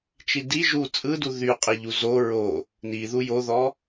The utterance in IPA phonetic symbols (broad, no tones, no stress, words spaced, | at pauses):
t͡ʃidi ʒu t͡sʼɯdu ðyqʼiʎu zo ɹo | niðu joðɔ